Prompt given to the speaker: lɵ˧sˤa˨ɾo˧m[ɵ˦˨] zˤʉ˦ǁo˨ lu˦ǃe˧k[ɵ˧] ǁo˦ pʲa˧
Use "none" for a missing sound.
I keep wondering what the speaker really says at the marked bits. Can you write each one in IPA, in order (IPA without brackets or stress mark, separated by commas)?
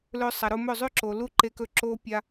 ɵ˦˨, ɵ˧